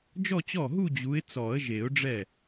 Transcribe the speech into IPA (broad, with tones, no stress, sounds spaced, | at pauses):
d͡ʒ ɔ˥˧ t͡ɕ ɔ˥˩ ɦ u˥˧ d͡ʑ u˨˦ ɪ̯ t͡s ɔ˨˩˦ ə̯ ʒ e˨˩˦ ʊ̯ ɖ͡ʐ ɛ˥˩